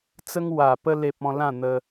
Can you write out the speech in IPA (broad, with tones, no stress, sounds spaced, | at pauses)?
t͡s ə˦ ŋ w a˨˩ p ə˧ l e˨ p̚ ɔ̃˧ l ã˥˧ n̪ ə˧